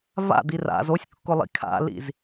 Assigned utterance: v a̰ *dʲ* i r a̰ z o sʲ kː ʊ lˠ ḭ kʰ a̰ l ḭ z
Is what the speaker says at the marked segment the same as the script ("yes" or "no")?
no